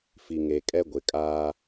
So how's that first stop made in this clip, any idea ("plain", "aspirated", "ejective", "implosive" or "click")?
ejective